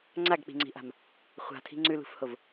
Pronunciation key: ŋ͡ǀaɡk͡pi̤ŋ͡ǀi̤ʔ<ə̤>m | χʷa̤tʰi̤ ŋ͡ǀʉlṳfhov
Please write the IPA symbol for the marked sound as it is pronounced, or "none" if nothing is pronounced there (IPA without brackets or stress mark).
a̤